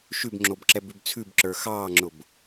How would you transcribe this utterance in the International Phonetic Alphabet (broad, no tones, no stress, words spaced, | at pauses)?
ʃʉbŋ͡ǁobǁɛbʉb t͡sʰʉbǁə˞ xɑːŋ͡ǁʊb